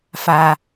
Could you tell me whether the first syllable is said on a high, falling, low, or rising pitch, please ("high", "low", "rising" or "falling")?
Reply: low